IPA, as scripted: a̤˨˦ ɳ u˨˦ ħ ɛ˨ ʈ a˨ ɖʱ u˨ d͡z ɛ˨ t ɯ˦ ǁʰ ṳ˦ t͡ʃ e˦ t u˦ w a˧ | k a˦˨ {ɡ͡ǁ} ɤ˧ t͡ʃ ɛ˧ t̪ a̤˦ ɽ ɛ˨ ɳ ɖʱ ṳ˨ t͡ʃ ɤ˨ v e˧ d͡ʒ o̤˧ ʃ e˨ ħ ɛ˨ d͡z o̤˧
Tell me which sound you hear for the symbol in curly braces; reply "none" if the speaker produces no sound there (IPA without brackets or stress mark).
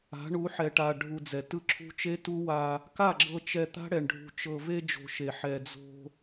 ɡ͡ǁ